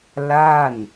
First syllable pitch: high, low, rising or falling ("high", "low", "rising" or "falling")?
falling